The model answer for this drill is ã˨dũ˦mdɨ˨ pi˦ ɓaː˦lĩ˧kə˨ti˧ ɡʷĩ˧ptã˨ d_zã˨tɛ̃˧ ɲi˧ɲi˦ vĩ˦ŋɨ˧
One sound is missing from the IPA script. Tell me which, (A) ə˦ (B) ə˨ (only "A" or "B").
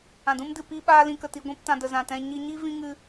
B